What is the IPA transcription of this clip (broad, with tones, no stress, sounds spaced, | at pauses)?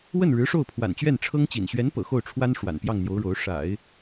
w ə˥˩ n ɻ ɻ̩˧˥ ʂ o˥˩ ʊ̯ pʰ w a̰˨˩ n t͡ɕ ɥ ɛ˥˩ n ʈ͡ʂʰ ɤ˥ ŋ t͡ɕ ḭ˨˩ n ɕ ɥ ɛ˧˥ n p ɤ̰˨˩ x o˥˩ ʊ̯ ʈ͡ʂʰ w a˥ n ʂ w a̰˨˩ n p j ɑ˥˩ ŋ n̪ j o˧˥ ʊ̯ ɻ o˧˥ ʊ̯ ʂ a̰˨˩˦ ɪ̯